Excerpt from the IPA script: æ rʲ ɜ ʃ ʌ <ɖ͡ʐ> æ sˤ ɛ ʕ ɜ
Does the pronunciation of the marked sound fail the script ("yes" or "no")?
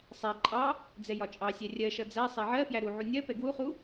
yes